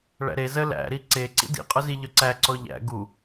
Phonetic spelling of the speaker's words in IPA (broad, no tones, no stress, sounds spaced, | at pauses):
ɭ æ̰ ɾ e z ə l æ̰ ɾ i ǀ e ǀ ḭ d ḭ qʼ œ z i ʎ œ ǀ æ ǀ ɔ ʎ æ̰ ɡ u